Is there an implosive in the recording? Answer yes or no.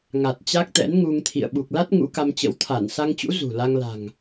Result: yes